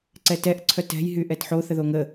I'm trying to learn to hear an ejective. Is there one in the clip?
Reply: no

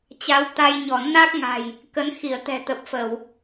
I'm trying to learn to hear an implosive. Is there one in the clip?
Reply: no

